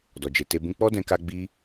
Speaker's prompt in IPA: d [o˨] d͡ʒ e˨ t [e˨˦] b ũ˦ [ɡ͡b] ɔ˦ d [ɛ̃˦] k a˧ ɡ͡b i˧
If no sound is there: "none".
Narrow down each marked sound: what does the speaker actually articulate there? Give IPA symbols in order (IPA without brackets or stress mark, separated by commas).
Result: ɔ˨, e˧, k͡p, ɛ̃˧